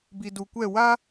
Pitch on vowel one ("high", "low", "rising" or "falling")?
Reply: low